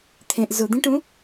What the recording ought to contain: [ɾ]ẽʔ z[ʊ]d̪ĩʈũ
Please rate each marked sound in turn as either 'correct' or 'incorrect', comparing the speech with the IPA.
incorrect: t̪ʰ, correct

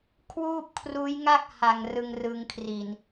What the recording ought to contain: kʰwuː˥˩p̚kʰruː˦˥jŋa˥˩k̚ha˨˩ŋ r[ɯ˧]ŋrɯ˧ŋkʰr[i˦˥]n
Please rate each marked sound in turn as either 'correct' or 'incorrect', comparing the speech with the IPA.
correct, incorrect: i˨˩

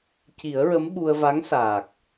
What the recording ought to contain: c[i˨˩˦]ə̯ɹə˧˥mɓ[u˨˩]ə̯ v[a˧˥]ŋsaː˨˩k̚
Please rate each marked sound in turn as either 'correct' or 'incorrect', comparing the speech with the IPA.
correct, incorrect: u˧, correct

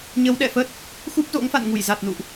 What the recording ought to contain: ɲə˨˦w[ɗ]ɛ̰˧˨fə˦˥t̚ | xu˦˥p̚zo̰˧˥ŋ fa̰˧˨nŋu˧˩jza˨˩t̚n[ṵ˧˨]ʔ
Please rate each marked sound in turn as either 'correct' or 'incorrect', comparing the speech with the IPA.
correct, correct

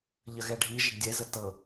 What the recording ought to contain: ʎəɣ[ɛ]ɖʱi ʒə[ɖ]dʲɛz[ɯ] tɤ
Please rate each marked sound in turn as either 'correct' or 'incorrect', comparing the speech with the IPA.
correct, correct, incorrect: ə

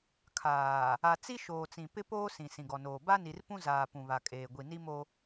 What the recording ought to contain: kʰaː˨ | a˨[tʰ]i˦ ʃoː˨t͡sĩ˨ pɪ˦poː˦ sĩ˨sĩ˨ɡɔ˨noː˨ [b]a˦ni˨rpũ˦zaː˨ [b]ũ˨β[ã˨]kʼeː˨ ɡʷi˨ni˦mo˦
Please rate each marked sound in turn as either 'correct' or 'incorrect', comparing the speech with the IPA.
incorrect: t͡s, correct, incorrect: p, incorrect: a˨

